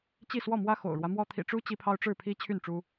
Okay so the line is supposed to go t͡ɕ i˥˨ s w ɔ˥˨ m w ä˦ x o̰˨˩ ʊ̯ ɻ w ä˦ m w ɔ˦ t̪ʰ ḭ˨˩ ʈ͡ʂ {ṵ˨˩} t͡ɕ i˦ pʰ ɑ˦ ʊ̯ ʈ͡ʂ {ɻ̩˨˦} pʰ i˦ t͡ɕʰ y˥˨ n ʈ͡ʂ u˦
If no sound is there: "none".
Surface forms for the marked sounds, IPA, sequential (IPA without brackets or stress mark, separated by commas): u˦, ɻ̩˥˨